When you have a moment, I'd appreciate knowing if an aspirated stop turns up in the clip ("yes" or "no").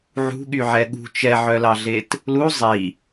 no